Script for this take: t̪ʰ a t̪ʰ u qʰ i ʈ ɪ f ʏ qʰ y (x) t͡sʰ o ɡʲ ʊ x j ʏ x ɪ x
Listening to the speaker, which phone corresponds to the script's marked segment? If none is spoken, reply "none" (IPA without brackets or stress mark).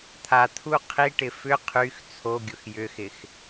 x